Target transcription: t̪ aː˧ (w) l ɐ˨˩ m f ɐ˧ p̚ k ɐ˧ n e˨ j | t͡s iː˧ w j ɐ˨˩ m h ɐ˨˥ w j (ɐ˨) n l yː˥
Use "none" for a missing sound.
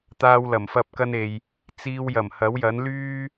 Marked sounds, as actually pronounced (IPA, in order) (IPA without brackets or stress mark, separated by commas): w, ɐ˨˥